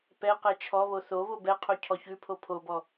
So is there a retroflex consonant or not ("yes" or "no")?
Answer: no